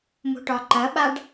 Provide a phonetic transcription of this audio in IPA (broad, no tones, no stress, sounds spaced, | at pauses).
m o̤ ʈ ɒ ǃ ɐ ɓ a ɖ